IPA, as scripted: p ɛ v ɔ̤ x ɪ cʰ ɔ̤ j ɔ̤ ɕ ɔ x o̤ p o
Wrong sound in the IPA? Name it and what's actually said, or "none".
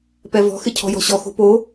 none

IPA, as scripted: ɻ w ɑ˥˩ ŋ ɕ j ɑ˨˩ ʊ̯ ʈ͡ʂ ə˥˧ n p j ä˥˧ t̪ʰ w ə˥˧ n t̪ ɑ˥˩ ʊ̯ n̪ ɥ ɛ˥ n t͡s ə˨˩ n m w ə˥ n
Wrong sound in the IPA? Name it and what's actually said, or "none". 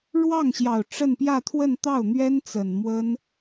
none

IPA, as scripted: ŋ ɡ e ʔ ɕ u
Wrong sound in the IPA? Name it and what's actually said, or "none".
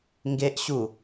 none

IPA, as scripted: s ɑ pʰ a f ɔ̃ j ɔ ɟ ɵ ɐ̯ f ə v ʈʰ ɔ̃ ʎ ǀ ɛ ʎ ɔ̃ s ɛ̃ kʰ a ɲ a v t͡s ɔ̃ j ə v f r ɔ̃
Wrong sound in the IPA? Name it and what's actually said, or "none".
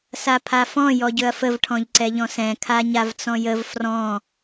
ɑ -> a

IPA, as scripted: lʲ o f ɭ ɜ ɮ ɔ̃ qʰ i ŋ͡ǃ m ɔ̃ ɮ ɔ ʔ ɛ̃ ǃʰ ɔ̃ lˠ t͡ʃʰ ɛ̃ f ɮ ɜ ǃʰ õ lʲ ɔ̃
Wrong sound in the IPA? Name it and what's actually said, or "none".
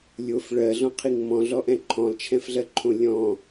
ŋ͡ǃ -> ŋ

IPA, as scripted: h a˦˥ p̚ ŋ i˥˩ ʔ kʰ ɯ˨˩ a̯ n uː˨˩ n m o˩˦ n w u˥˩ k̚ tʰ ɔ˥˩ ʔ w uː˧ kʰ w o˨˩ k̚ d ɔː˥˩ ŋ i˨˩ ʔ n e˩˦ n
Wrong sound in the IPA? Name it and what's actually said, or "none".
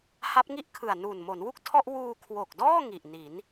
e˩˦ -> i˩˦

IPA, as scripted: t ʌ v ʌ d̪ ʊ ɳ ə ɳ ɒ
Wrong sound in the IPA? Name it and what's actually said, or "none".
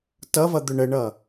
ɒ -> ʌ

